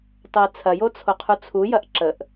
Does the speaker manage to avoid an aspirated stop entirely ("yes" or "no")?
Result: no